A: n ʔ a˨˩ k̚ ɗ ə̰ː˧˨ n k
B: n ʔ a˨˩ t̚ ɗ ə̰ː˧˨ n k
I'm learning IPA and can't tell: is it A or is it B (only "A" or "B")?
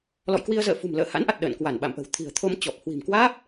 B